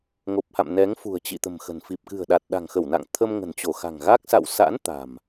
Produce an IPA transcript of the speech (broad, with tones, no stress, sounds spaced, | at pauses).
ŋ o˨˩ p̚ h a̰˧˨ m n ɛ˨˦ ŋ f ṳ˨˩ ə̯ t͡ɕ ḭ˧˨ t̪ ə̤˨˩ m x ə̤˨˩ n f i˨˩ p̚ k ɨ̤˨˩ ə̯ ɗ a˨˩ t̚ ɗ a̤˨˩ ŋ x ə˧˩ w n a̰˧˨ ŋ t̪ʰ ə˧ m ŋ ə̤˨˩ n t͡ɕ o˧˩ x a̤˨˩ ŋ ɣ a˦˥ k̚ s a̰˧˨ w s a̰˧˥ n t̪ a̤˨˩ m